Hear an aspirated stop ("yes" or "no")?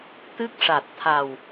yes